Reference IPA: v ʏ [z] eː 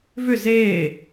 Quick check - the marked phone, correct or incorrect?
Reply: correct